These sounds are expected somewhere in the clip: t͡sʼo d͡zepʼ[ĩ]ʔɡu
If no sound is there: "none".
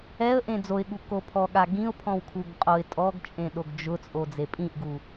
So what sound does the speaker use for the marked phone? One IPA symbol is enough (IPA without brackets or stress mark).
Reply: ĩ